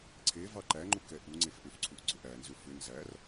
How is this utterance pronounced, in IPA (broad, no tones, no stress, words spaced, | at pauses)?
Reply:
ǀʰe vɑǃæŋ͡ǃu kɛʔuŋ͡ǀef ʔʏfǀʰuʔ ɡ͡ǀʏʔænzʏ fʏ nzær